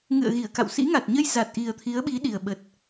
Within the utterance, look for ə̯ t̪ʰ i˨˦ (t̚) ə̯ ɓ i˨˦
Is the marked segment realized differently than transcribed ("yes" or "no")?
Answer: yes